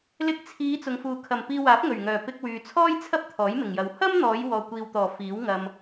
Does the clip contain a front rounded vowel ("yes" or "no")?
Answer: yes